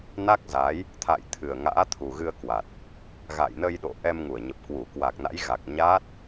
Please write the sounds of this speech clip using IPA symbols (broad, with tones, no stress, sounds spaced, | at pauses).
n a˦˥ k̚ z a˨˦ j | t̪ʰ a̰˧˨ j t̪ʰ ɨ˨˩ ə̯ ŋ a̰ː˧˥ t̪ʰ u˨˩ ɣ ɨ˧ ə̯ k w a˨˩ t̚ | ɣ a̰ː˧˨ j n ə˧ j ɗ o̰˧˨ ʔ ɛ˧ m ŋ u˧˩ ə̯ ɲ ə˨˩ p̚ k w u˧˩ k w a˨˩ k̚ n a̰˧˥ j ɣ a˨˩ k̚ ɲ a˦˥ t̚